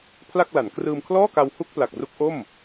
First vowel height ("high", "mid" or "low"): low